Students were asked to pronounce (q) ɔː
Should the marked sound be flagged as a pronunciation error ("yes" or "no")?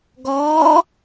yes